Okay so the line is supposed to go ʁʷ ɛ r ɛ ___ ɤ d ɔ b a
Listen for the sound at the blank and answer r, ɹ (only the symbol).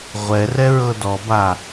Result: ɹ